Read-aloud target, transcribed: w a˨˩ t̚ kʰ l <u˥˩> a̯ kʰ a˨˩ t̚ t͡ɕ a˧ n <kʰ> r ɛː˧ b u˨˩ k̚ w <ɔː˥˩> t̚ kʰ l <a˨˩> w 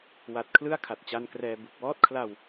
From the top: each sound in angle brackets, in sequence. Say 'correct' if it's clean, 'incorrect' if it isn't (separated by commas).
incorrect, incorrect, correct, incorrect